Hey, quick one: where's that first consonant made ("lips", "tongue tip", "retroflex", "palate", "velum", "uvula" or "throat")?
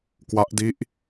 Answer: velum